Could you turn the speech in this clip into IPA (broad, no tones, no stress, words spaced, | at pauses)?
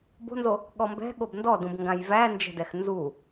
bo̤nzo | ɠɔmbɛ̤ ɠobndɔdũb ŋɡãjvænd͡ʒɛ̤dɛx nzu